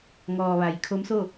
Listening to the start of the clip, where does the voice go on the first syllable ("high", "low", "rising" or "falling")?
low